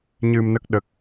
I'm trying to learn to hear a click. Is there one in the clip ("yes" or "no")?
no